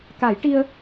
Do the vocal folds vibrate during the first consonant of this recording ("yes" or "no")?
no